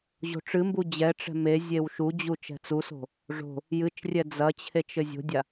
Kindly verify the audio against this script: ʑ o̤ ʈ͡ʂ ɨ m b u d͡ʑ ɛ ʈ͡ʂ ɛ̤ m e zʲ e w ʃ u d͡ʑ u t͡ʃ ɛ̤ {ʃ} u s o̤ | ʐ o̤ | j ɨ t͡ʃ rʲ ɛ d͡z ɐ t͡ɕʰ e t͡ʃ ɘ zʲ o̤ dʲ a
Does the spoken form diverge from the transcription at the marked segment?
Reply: yes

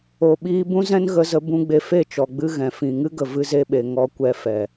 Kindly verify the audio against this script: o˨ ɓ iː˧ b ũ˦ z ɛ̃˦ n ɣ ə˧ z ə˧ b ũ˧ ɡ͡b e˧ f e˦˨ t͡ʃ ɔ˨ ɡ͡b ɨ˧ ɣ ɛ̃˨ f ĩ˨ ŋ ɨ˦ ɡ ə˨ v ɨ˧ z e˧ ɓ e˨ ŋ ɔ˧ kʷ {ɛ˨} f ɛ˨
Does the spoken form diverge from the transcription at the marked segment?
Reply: yes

